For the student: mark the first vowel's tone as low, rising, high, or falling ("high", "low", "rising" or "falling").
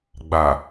low